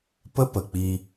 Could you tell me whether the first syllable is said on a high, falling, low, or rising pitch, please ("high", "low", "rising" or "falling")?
high